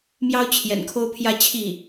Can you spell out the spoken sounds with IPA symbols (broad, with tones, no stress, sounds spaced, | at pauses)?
m j ɑ˥ ʊ̯ t͡ɕʰ j ɛ̰˨˩ n kʰ o˥ ʊ̯ pʰ j ä˥˧ t͡ɕʰ i˥˩